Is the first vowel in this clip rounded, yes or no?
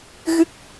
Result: no